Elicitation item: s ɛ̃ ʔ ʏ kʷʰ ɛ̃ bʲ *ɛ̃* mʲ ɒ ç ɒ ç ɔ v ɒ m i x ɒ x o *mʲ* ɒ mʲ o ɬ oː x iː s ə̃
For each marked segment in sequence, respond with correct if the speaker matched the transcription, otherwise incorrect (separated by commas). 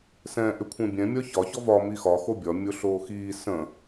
correct, incorrect